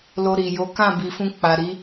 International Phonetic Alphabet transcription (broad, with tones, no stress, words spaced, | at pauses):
lo˧ɾi˨jo˨˦ kã˦˨bi˨fũ˧ k͡pa˨ɾi˨˦